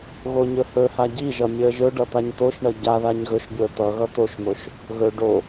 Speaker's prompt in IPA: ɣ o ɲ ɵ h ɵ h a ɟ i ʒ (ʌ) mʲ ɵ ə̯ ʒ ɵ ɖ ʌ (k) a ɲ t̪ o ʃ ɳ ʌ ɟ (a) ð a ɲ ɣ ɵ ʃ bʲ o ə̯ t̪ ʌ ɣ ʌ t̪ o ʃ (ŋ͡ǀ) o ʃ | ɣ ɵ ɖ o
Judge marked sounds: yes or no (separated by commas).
yes, no, yes, no